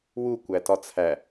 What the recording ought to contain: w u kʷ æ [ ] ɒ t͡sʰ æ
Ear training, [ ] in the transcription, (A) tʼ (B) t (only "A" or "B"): B